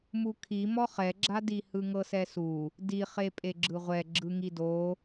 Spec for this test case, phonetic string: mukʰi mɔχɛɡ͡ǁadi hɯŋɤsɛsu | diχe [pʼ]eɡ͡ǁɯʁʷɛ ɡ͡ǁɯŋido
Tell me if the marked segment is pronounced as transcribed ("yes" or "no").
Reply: yes